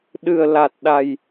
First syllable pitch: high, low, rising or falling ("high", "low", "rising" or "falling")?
low